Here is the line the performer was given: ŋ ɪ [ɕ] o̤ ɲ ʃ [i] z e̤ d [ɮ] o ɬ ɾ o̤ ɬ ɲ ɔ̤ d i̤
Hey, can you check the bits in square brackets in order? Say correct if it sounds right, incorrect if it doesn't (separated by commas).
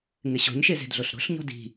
correct, incorrect, correct